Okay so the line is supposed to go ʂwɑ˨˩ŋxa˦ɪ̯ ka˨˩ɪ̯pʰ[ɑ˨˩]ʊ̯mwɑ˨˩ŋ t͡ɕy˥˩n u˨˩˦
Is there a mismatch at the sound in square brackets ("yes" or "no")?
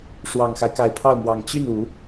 yes